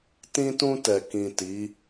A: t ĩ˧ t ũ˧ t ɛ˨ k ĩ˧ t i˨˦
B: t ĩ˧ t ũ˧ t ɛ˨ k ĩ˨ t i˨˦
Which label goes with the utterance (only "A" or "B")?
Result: B